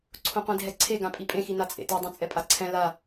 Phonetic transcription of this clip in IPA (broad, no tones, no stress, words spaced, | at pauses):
ǀʰõqʷĩdʱɛǀʰe ɡãpʼipʼẽ xinat͡sʼḛte dˤɛ̃t͡sʼɛpʼaǀʰɛ̃ la